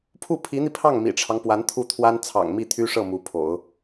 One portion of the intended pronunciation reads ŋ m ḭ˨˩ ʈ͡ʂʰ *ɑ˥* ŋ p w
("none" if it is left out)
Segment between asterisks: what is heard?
ɑ˦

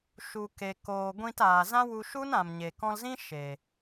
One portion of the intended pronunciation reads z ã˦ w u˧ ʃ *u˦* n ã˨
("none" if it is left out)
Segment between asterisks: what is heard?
u˦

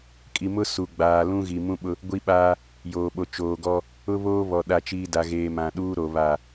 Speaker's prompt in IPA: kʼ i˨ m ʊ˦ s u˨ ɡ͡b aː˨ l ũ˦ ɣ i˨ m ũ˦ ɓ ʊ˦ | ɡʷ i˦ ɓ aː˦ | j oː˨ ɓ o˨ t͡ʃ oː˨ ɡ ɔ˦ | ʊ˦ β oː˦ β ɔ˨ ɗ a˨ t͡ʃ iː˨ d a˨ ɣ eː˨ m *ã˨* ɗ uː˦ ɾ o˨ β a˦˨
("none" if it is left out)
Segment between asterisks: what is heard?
ã˨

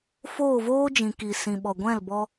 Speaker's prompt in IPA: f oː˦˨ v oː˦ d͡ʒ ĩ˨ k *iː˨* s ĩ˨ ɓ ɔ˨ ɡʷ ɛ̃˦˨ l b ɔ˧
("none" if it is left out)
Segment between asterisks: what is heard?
i˨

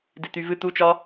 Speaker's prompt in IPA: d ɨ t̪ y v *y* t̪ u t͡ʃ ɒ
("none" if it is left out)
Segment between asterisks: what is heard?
ɨ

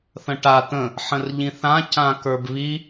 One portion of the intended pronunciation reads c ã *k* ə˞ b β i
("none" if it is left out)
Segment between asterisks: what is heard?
k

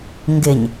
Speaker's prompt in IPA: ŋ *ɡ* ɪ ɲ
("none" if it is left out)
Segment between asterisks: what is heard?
ɡ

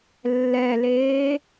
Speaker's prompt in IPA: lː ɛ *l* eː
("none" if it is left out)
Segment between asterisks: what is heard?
l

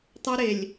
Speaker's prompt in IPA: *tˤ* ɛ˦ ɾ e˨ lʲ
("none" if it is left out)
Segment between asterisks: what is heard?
tˤ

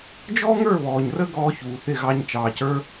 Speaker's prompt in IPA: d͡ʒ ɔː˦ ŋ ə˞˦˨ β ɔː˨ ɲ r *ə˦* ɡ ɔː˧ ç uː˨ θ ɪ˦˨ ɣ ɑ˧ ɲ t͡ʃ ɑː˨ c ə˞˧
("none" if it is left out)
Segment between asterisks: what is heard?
ə˦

